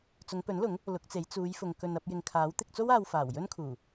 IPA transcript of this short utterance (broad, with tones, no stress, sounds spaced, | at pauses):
t͡s ʊ˨˧ ŋ p ɵ˨˥ n l ʊ˨˥ ŋ | l ʊ˨˥ k̚ t͡s e˨˥ j t͡s uː˨˧ j f ʊ˨ ŋ k ɵ˧ n ɐ˧ p̚ j ɪ˨ ŋ kʰ aː˨˥ w t̪ ɪ˧ k̚ t͡s o˥ w aː˧ w f aː˨˩ w j ɵ˥ n kʰ uː˨˩